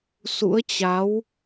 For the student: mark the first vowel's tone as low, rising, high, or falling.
rising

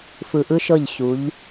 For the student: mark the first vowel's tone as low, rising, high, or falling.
low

